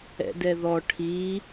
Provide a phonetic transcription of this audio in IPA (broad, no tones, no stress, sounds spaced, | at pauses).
ɛ̰ d ɛ ð ɔ ʈʰ i